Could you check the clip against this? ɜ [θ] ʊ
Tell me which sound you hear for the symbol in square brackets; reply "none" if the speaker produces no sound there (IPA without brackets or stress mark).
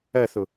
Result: θ